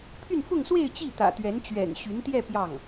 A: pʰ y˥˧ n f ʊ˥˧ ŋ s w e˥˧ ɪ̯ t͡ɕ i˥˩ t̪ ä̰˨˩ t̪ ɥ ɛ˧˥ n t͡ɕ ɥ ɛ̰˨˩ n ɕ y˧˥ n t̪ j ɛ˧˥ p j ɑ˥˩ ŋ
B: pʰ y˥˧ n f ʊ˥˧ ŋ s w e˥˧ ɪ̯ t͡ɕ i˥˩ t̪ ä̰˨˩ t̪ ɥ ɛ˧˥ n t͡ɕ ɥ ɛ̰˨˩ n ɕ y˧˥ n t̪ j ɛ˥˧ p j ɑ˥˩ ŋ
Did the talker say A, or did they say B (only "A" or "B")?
B